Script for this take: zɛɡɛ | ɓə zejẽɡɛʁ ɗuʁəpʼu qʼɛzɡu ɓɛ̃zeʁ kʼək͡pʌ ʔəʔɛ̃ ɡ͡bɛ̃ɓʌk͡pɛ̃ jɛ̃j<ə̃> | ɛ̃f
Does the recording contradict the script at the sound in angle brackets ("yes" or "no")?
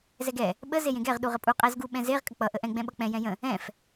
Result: no